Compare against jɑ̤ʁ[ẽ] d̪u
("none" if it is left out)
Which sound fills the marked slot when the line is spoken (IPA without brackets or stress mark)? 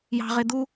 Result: e